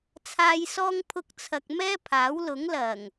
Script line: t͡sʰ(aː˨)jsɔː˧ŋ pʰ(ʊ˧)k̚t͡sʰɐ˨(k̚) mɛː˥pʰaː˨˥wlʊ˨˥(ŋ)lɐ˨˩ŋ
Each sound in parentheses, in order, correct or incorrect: correct, correct, correct, correct

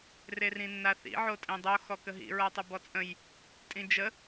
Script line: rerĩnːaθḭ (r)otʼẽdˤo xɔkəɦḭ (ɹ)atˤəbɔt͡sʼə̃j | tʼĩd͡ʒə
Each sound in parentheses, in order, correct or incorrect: incorrect: ʕ, correct

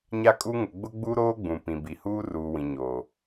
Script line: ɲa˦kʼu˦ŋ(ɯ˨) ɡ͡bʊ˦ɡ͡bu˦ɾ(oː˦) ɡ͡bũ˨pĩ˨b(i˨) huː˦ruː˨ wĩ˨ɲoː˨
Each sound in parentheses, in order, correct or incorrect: incorrect: ʊ˨, correct, correct

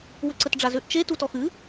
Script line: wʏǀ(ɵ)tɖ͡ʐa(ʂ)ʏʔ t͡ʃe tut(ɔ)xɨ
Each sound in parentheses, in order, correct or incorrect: incorrect: ə, incorrect: z, correct

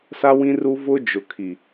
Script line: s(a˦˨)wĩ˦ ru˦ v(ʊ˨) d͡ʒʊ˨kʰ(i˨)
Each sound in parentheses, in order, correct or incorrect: incorrect: a˦, incorrect: ʊ˦, correct

